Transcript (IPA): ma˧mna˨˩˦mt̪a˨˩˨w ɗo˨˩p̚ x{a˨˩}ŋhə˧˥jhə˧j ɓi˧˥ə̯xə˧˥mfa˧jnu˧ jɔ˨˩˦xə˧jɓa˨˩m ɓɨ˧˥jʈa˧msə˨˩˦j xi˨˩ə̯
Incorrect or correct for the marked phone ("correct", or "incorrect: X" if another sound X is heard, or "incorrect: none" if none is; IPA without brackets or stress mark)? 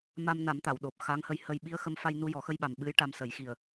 incorrect: a˧˥